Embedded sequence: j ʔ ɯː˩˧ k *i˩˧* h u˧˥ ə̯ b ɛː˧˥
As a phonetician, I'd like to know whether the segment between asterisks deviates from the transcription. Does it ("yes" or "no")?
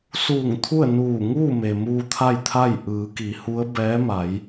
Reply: no